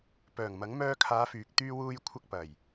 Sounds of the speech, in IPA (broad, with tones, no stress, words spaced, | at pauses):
pœː˨˩ŋmɐ˨˥ŋ mœː˧kʰaː˨˧fyː˨k̚ t̪yː˧wuː˧jkʷʰɐ˧k̚ pɐ˨˩j